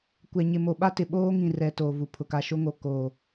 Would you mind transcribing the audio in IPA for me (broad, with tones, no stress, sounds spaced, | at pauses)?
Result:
kʷ ɛ˨ ɲ ɪ˨ m o˨ ɓ a˦ t ɪ˨ ɓ oː˦ ŋ ĩ˨ r ɛ˨ t oː˨ v u˨ pʰ ʊ˨ k a˨ ʃ o˦ ŋ o˨ k oː˨